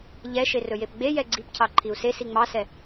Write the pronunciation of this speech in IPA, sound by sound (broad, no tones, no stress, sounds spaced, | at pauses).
ʎ ɛ ʃ e r ɵ j e p ɡ͡b e j ɛ ɡ͡ǀ i p cʰ ɑ ǃʰ i u̯ s e s i ŋ͡m ɑ s ɛ